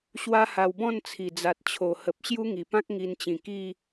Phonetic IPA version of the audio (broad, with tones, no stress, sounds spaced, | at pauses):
ɕ w a˦ h a˧ w b ɔ̃˥˧ n t͡sʰ i˨˩ d͡z a˨ t̚ t͡ɕʰ o˨˩ h ə˨ p̚ ɕ j u˦ ŋ i˨˩ p ã˦ k̚ ŋ i˧ n t͡ɕ ĩ˨˩ k i˥˧